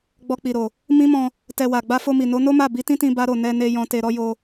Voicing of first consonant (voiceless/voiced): voiced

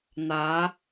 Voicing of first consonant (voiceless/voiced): voiced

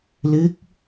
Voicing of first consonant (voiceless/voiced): voiced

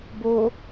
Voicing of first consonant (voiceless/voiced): voiced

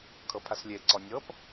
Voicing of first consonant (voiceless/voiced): voiceless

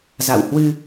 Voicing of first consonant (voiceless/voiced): voiced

